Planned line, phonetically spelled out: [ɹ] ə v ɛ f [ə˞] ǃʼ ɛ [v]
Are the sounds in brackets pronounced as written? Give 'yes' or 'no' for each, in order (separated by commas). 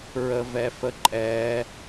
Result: yes, no, no